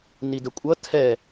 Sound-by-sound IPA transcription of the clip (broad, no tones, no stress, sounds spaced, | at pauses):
n i d ə kʷʼ ʌ tʰ ɛ